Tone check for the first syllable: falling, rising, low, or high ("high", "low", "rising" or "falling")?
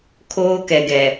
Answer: high